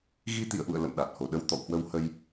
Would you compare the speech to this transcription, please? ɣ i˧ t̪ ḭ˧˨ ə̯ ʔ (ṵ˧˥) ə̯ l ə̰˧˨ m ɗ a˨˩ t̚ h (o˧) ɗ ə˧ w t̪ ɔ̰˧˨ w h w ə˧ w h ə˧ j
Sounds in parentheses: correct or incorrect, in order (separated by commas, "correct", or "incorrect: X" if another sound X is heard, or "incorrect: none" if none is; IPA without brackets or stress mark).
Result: incorrect: ṵ˧˨, incorrect: o˨˩